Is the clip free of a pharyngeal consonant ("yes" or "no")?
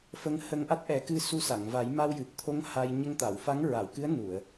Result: yes